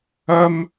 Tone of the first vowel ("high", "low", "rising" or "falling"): high